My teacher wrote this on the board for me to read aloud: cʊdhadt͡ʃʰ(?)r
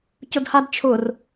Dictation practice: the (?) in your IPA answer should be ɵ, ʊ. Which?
ʊ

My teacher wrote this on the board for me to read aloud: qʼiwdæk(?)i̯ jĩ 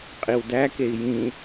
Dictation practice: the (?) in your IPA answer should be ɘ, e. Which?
e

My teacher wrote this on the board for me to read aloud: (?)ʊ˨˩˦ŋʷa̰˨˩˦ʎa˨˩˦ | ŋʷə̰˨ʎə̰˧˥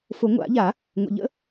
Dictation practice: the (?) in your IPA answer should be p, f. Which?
f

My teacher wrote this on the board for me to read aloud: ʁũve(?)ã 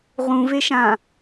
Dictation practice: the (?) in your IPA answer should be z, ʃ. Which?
ʃ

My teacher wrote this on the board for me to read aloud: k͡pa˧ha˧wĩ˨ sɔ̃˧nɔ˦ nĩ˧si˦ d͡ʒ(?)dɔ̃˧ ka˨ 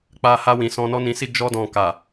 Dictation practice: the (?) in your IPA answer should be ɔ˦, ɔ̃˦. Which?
ɔ˦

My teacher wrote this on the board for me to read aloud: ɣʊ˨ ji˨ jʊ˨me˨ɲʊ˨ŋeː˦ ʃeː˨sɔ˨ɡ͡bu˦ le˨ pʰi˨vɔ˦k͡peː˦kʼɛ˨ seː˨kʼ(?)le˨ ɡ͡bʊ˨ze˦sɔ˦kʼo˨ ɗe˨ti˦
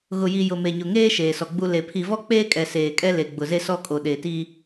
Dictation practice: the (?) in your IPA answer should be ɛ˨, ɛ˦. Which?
ɛ˦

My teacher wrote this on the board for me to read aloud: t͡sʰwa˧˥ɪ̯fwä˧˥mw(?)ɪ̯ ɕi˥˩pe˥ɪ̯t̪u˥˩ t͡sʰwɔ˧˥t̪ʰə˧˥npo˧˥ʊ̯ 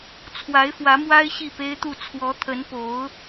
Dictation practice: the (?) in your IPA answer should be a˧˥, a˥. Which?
a˥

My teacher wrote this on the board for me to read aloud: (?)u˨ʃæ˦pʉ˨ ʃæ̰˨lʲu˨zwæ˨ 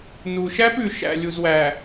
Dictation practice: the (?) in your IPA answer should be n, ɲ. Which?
n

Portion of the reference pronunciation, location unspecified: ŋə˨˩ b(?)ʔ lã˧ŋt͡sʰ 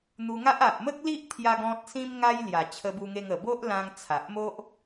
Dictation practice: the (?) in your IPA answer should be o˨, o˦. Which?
o˦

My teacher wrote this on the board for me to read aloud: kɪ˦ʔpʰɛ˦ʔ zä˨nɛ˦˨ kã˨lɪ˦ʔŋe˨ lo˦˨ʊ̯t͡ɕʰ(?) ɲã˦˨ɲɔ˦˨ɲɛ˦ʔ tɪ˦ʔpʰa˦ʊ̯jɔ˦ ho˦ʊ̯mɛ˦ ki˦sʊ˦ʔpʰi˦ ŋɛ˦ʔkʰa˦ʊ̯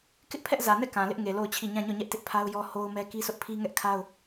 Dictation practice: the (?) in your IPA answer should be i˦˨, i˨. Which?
i˦˨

